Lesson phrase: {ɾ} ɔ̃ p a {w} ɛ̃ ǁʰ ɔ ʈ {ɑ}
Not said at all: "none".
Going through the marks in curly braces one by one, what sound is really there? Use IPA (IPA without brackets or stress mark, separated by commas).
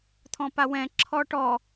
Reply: t̪ʰ, w, ɔ